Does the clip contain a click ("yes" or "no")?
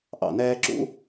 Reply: yes